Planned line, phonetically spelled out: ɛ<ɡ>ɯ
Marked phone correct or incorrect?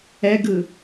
correct